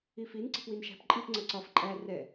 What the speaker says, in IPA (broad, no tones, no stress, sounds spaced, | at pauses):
i f i n ǀ ɛ̤ p w i n ʃ æ̤ p ǃʼ i p ŋ͡ǀ ɜ ǀ ɒ f ǃʼ æ r ɛ